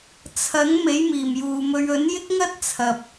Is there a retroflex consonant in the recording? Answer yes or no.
no